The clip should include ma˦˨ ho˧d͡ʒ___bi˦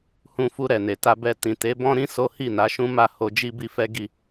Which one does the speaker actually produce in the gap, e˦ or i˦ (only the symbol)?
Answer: i˦